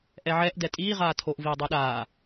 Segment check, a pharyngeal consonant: present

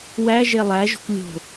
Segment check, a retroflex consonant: absent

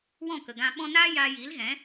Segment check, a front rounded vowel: absent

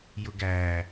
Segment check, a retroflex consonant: absent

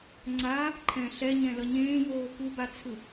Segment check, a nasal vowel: present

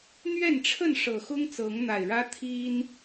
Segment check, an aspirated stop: present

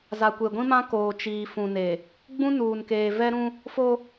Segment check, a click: absent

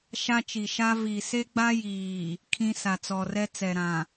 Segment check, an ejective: absent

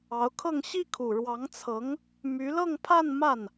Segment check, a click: absent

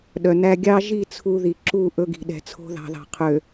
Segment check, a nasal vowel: absent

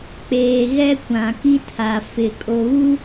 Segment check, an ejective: present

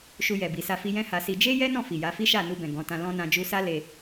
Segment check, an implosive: absent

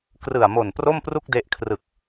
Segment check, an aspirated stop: present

